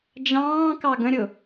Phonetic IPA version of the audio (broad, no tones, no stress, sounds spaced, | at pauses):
d͡ʒ ɑ̃ː k ɑ ɡ ə̃ ɾʲ ʊ